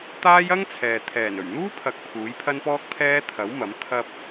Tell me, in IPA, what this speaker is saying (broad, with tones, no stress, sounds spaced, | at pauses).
t̪ aː˥ j ɐ˥ ŋ t͡sʰ ɛː˨ t̪ʰ ɛː˨˩ n ɵ˨˩ ɥ n̪ uː˥ pʰ ɐ˨˥ k̚ pʰ uː˨˥ j pʰ ɐ˥ n p ɔː˥ k̚ t̪ʰ ɛː˥ t̪ʰ ɐ˨˥ w m ɐ˨˥ m t̪ʰ ɐ˧ p̚